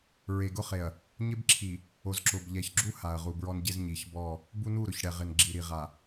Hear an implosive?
no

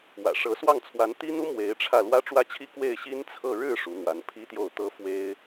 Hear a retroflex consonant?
yes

